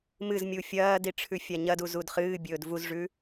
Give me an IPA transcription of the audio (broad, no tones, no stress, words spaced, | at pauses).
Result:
mɨzmʲu fʲɐːdiʈ͡ʂʰʉfʲa ɲɐduzud χɨːbʲɵːd vuzʐʉ